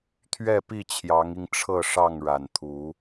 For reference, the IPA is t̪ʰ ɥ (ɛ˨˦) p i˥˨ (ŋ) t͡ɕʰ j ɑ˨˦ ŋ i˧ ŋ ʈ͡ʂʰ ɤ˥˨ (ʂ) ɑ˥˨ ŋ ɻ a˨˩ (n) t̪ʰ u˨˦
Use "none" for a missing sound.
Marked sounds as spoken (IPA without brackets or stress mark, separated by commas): ɛ˥˨, none, ʂ, n